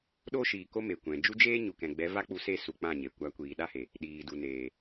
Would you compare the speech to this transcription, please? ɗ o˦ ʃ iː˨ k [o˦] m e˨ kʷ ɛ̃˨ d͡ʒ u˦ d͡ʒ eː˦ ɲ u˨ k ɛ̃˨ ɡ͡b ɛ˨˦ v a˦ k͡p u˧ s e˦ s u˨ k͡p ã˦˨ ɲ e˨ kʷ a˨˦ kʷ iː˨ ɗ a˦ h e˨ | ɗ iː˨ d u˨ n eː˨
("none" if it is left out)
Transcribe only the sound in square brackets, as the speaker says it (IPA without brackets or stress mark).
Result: o˦